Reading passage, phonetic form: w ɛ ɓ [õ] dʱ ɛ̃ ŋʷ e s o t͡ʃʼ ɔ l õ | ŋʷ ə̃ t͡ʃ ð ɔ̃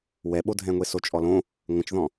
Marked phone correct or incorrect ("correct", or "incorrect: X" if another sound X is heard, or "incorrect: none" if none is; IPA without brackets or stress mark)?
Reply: incorrect: o